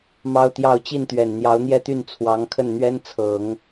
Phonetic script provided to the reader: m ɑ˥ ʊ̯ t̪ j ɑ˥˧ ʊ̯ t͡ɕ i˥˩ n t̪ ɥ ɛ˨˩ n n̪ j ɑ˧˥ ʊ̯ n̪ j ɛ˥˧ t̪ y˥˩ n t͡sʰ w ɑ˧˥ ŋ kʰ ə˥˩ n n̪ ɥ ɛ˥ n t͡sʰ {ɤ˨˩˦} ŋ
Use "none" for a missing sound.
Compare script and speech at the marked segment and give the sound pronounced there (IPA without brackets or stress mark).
ɤ˨˩˦